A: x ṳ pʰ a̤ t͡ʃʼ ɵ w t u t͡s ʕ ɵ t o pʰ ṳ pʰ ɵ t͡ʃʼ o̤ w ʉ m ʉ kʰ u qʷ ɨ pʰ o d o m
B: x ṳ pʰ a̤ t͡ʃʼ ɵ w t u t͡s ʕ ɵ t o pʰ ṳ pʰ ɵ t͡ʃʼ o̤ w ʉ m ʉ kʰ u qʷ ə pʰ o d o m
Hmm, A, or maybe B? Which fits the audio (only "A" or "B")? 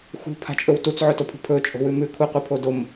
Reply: A